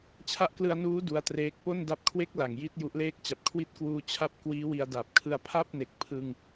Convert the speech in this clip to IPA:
t͡ɕʰ a˦˥ ʔ k l ɯ˧ a̯ n uː˦˥ d u˦˥ a̯ t r eː˦˥ k̚ p o˥˩ n d a˦˥ p̚ kʰ w e˦˥ k̚ l a˨˩ ŋ j i˥˩ t̚ j u˦˥ ʔ l eː˥˩ k̚ t͡ɕ a˨˩ p̚ kʰ w i˦˥ t̚ k w uː˧ t͡ɕʰ a˥˩ p̚ k w iː˦˥ w i˧ a̯ d a˨˩ p̚ kʰ ɯ˧ a̯ pʰ a˥˩ p̚ n e˨˩ k̚ pʰ ɯ˧ ŋ

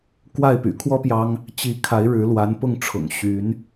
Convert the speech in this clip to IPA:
k w a˥˩ ɪ̯ p y̰˨˩ kʰ w ɔ˥ p j ɑ˥ ŋ | t͡ɕ i˧˥ kʰ a˧˥ ɪ̯ ɻ ɻ̩˧˥ l w a˧˥ n p ʊ˥˩ ŋ ʈ͡ʂʰ ʊ̰˨˩ ŋ ɕ y˧˥ n

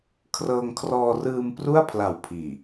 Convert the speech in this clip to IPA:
kʰ r ɤː˧ ŋ kʰ r ɔː˧ r ɯː˧ m p r u˥˩ a̯ pʰ l a˨˩ w pʰ iː˨˩

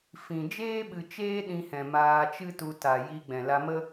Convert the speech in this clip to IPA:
f ĩ˨ d͡ʒ eː˦ ɓ ɨ˨ t͡ʃ eː˦ ɗ ĩ˧ h ɛ̃˨ m aː˧ t͡ʃ ɨ˦ t u˧ t a˨ j i˧ ɡ͡b ɛ̃˨ l a˧ m ə˦

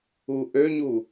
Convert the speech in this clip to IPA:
u ʔ ø ɲ u

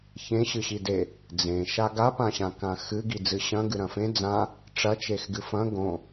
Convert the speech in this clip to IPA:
ç ẽ ɕ ɨ ɕ i d e | d͡z ẽ ʃ a ɡ a p ã ɕ ã k ã x ɨ ɡ i d͡z ɨ ɕ ɐ̃ ɡ ɨ ɾ ɐ̃ f ẽ d͡z ã | ʈ͡ʂ ɐ t͡ʃ e x ɡ ɨ f ɐ̃ ɡ õ

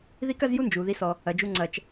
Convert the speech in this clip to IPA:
ð i˦ k ɐ˦ z j u˦ n d͡ʒ u˨ ð i˦ s ɔ˦ | ɐ˨ d͡ʒ u˦ ŋ͡ǀ ɐ˦ t͡ʃ

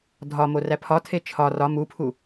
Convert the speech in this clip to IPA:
dʱ ɒ m o r æ pʰ ɒ tʰ e t͡ʃʰ ɒ r ɒ m u pʰ u

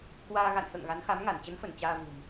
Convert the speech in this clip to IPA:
k w aː˧ ɣ a̰˧˨ n h ə̰ː˧˨ ŋ ɣ a˨˦ n x a˨˦ m ŋ a˧˩ n t͡ɕ ə˨˦ n f ə˧˩ n t͡ɕ aː˧ v ṳ˨˩ m

